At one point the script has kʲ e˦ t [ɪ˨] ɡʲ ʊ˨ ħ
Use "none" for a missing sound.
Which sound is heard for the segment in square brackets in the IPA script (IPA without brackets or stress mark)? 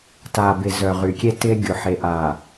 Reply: ɪ˦